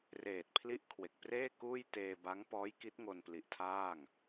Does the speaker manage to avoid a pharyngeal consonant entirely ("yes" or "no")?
yes